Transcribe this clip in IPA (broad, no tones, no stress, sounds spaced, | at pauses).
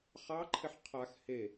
χ ɑ ǃʰ ɪ ħ qʰ a x h e